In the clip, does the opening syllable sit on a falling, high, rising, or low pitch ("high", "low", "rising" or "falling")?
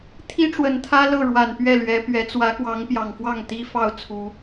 high